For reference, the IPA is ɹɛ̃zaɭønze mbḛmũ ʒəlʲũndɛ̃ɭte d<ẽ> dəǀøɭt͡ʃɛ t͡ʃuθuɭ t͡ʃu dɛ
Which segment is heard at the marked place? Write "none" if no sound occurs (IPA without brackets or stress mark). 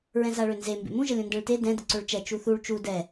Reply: ɛ̃